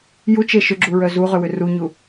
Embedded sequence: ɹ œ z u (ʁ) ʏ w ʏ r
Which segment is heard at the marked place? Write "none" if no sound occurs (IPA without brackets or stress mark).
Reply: ʁ